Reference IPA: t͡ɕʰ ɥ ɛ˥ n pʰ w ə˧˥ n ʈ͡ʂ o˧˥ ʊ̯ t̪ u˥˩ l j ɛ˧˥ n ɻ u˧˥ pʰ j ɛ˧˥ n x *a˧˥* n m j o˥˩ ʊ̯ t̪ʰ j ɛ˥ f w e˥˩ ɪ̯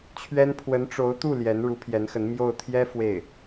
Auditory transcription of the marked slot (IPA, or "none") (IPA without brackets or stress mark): ə˧˥